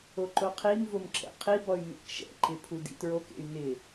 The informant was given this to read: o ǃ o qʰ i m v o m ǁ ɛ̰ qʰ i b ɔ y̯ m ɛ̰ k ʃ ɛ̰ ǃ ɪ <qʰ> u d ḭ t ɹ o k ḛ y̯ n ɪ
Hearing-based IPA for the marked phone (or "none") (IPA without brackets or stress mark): pʰ